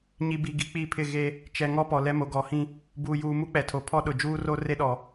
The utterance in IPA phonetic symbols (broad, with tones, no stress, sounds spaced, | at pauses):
ɲ i˨ b i˨ ɡ i˨ k͡p i˦˨ pʰ ɪ˦˨ ɣ e˦ | t͡ʃ ɛ˨ ŋ ɔ˦ p ɔ˨ l ɛ˦ m o˨ ɡ ɔ˨˦ h ĩ˦ | b uː˨ j uː˨ m u˦ k͡p ɛ˨ tʰ o˨ pʰ ɔ˦ ɗ ʊ˨ d͡ʒ uː˦ r o˦ r e˦ ɗ ɔ˨